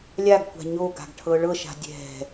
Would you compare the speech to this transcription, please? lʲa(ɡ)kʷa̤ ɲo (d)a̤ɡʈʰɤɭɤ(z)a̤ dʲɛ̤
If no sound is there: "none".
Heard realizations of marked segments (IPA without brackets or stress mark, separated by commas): ɡ, ɡ, ʃ